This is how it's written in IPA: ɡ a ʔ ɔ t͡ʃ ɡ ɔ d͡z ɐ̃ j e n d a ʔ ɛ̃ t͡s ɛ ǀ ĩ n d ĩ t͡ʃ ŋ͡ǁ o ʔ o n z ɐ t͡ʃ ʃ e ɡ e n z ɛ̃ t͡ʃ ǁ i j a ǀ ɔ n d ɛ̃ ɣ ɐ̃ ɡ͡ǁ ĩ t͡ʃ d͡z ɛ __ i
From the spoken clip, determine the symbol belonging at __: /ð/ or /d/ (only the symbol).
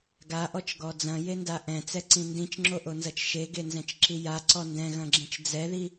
ð